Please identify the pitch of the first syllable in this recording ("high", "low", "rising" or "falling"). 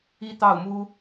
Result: high